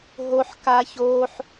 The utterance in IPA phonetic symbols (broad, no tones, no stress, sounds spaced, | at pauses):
ɦ o ħ k a ç o ħ